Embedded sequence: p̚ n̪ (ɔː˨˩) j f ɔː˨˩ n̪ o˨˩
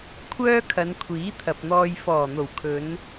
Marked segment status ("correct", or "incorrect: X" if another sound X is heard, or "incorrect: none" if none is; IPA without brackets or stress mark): incorrect: ɔː˧